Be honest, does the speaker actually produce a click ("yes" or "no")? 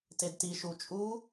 no